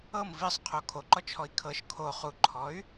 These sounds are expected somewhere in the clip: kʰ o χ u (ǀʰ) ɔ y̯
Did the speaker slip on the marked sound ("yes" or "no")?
yes